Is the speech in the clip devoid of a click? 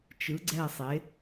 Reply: no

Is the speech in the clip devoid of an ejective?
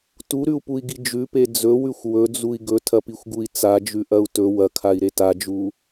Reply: yes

